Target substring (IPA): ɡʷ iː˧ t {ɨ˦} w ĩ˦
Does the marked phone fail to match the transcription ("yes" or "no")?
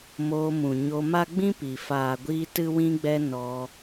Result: no